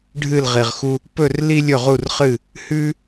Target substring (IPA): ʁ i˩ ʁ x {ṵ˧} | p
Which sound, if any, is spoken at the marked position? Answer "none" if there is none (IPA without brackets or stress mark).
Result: u˧